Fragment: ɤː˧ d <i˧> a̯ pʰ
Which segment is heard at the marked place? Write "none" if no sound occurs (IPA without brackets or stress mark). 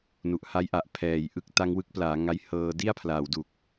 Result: i˥˩